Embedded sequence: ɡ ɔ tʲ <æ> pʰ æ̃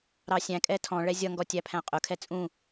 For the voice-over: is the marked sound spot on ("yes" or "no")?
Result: yes